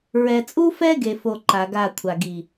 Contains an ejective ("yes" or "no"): yes